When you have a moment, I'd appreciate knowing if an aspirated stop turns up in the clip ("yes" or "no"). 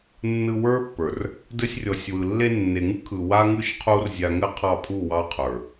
yes